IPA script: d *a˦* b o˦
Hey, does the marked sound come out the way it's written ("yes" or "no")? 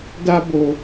yes